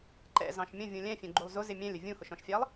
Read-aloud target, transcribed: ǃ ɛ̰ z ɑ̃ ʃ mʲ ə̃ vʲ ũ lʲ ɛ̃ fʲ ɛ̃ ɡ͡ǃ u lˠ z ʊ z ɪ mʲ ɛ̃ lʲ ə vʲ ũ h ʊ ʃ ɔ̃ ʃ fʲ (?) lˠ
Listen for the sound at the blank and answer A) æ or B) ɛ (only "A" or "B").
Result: A